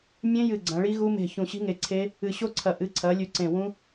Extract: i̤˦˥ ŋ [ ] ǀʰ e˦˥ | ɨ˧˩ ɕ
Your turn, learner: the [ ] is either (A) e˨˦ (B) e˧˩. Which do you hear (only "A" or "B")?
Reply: B